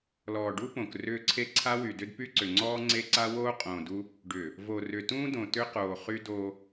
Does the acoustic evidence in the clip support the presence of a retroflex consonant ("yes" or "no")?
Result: yes